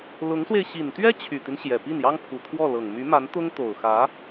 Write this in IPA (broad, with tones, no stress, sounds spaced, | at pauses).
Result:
l ʊ˧˥ ŋ s w e˧ ɪ̯ ɕ i˨˩ n t̪ ɥ ɛ˥ t͡ɕʰ y˨˩ t̪ i˦ n ɕ j ɛ˨˩ p i˥˩ n j ɑ˥ ŋ pʰ u˨˩ t̪ʰ w ɔ˥˩ l ɤ˨˩ ŋ m y˧˥ m a˧˥ n t̪ ʊ˥ ŋ t̪ o˨˩ ʊ̯ x ä˧˥